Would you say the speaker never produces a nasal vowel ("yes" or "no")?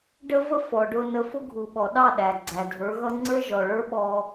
yes